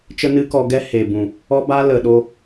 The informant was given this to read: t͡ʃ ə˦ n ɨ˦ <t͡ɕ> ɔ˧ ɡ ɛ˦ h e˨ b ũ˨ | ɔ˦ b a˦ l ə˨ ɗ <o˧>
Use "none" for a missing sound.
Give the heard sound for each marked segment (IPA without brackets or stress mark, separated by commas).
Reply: k, o˧